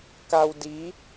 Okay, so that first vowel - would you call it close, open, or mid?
open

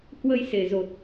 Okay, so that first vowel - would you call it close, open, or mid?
mid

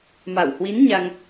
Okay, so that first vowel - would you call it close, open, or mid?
open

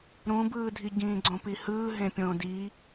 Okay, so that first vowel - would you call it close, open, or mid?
close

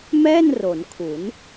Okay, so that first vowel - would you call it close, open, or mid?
mid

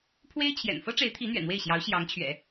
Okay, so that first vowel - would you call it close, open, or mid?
mid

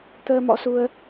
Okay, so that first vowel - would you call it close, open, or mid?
mid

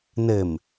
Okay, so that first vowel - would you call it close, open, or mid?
mid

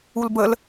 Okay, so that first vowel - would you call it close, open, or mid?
close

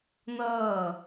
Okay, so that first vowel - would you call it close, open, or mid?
mid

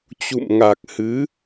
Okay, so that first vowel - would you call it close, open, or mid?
close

